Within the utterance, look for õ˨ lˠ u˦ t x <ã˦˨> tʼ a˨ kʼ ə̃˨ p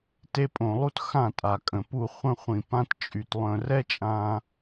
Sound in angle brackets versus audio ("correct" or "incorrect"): correct